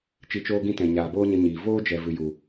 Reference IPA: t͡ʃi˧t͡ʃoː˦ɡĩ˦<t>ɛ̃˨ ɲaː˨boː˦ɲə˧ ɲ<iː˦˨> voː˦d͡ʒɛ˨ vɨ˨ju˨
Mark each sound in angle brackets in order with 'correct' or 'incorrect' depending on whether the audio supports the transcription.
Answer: correct, incorrect

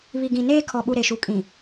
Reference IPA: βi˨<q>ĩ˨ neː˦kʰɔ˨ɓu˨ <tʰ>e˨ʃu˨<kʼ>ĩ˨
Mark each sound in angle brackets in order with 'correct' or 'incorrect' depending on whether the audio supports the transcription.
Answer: incorrect, incorrect, correct

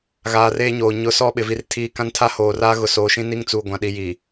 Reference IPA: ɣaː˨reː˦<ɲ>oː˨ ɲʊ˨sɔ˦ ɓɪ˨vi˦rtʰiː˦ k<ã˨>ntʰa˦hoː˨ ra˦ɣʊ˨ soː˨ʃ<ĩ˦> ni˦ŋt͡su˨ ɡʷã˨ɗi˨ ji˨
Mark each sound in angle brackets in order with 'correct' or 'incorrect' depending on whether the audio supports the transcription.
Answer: correct, incorrect, correct

